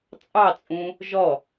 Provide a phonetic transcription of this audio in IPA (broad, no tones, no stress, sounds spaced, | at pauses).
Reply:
t͡sʼ ɑ t͡sʼ ũ | ʒ ɔ